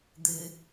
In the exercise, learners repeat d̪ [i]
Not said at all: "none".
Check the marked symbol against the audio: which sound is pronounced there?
ɨ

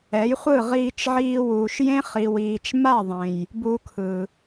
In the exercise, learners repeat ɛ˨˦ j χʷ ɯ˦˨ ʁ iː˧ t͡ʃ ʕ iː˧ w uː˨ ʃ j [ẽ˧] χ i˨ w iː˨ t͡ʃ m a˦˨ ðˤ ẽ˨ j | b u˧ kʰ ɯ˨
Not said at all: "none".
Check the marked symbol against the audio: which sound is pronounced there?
ẽ˦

